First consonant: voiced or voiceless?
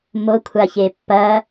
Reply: voiced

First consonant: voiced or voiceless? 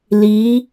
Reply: voiced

